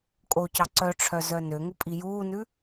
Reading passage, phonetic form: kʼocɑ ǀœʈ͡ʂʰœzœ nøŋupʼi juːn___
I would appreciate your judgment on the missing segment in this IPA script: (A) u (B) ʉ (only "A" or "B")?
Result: B